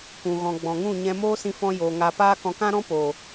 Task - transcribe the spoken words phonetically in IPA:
k ũ˨ ɣ ɔ̃˨ ɡ͡b ɔ̃˨ ŋ ũ˦˨ ɲ ɛ̃˧ m oː˦ s ĩ˧ f ɔ̃˧ j oː˨ ŋ a˨ p aː˧ k ɔ̃˨ k ã˦ ɾ ɔ̃˦ p oː˨

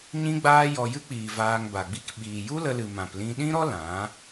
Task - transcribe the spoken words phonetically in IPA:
ɲ ĩ˦ ɡ͡b aː˦ j ɔ˧ j ɨ˦ k͡p iː˨ v aː˧ ŋ b a˨ ɡ͡b i˦ k ɓ iː˨ j u˦ l ə˧ l ɨ˨ m ã˨ p l ĩ˧ ɗ ĩ˦ ɾ ɔ˦ l ã˨˦

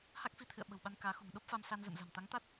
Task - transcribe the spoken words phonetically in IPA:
h a˦˥ k̚ f i˧ t̪ʰ ɨ̰˧˨ ə̯ ɓ ə̤˨˩ w ɓ a˧ n k aː˨˦ x ṳ˨˩ ŋ ɗ o˦˥ p̚ f a˧ m s a˧ n z ɨ̰˧˨ m z a̤˨˩ m t̪ a˨˦ ŋ t̪ a˦˥ t̚

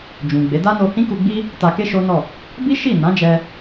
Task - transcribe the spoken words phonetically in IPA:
d͡ʒ ũ˨ ɡ͡b e˨˦ d a˦ n o˧ h ĩ˦ k u˧ ɡ͡b i˦ | t a˧ k e˦ ʃ o˦ n ɔ˦˨ | b i˦ ʃ i˦˨ n ã˨˦ d͡ʒ ɛ˧

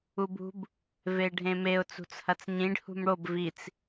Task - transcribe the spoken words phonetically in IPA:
u b ṳ b | v e ɖʱ ẽ m e ʊ̯ t͡s ṳ t͡s h ɐ t͡s ɲ ĩ ɖ h ṳ m ɽ o b v i t͡s

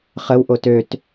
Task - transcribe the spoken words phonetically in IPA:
χ ə w ʔ o t ø t

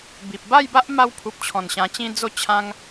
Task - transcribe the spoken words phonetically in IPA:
b i˨ p̚ b a˥˧ j b a˦ ʔ m a˦ w pʰ u˨ p̚ t͡ɕʰ ɔ̃˨˩ n ɕ ã˧ t͡ɕ ĩ˦ d͡z o˥˧ t͡ɕʰ ã˦ ŋ

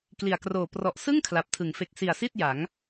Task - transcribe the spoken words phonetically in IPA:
k l i˨˩ a̯ k r oː˨˩ p r ɔ˨˩ ʔ s ɯ˥˩ ŋ kʰ l a˨˩ p̚ tʰ ɯ˩˦ ŋ f e˨˩ k̚ s i˨˩ a̯ s i˥˩ t̚ j a˩˦ ŋ

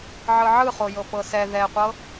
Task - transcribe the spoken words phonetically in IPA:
ʕ ɯ ʕ ɯ χ o j ɤ p ɤ s ɛ ð ɛ qʷ ɤ

